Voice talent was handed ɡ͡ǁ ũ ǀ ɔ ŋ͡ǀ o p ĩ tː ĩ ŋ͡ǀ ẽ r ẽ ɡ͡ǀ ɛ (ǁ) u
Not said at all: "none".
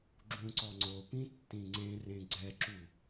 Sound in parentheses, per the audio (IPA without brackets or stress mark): ǁ